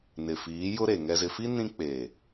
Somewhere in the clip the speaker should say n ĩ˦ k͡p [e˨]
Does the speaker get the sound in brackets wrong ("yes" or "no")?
yes